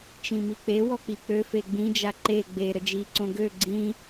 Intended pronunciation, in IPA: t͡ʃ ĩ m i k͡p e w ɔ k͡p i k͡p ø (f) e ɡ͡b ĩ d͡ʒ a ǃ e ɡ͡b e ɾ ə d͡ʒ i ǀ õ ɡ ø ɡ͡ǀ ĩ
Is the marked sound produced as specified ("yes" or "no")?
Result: yes